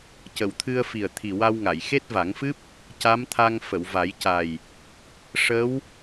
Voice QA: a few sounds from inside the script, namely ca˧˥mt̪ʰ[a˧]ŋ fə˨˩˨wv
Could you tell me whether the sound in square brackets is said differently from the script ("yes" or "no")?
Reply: no